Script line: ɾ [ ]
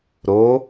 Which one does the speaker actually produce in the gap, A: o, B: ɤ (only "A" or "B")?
A